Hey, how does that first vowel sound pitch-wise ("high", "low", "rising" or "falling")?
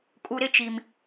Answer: low